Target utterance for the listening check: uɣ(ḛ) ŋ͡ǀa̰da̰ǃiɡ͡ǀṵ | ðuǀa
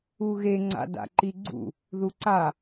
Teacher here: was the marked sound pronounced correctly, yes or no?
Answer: no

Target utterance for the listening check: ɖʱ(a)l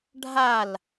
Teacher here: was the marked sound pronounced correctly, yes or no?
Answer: yes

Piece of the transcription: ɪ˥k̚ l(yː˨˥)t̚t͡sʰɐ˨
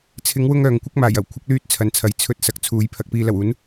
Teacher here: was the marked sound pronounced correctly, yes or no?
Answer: no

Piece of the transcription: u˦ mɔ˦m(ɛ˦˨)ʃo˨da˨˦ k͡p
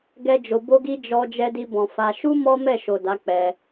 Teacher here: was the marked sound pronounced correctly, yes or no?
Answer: yes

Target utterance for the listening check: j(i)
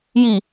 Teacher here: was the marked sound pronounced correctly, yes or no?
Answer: yes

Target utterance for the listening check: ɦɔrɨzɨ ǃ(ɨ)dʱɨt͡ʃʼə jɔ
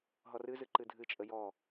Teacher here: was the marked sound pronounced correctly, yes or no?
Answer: yes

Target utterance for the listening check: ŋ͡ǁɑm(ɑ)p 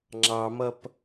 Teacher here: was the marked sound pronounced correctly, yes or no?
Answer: no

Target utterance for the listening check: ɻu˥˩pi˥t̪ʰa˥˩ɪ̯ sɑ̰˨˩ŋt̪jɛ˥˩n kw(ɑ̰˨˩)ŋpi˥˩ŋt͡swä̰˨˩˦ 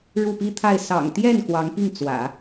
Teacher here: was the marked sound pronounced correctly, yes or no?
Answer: no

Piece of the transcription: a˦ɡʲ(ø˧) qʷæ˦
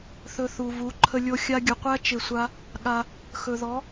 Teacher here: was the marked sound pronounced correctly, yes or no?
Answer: no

